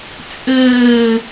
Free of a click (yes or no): yes